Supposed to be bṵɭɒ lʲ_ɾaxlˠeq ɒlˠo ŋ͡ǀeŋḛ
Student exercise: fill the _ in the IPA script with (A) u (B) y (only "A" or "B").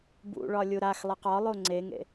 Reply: A